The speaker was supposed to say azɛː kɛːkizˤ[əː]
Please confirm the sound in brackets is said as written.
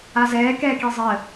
yes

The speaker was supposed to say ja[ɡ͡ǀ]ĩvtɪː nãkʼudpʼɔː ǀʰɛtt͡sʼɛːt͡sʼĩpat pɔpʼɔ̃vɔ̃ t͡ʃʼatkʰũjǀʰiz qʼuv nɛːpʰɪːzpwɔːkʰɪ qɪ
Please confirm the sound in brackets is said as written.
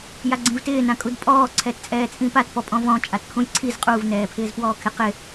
yes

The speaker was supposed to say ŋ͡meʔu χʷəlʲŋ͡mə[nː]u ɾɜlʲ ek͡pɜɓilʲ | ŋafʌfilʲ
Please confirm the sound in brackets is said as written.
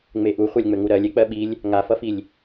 no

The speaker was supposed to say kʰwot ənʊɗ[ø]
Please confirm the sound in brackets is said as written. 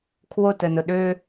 yes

